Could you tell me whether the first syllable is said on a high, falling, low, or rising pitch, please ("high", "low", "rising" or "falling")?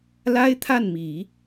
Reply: high